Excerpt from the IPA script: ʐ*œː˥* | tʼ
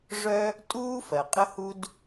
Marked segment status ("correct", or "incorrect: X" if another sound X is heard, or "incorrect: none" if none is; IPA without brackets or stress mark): incorrect: œ˥